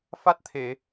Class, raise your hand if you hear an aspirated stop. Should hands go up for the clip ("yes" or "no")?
yes